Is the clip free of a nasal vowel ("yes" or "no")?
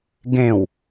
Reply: no